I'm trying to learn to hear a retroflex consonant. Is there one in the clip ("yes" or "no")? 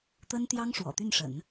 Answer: yes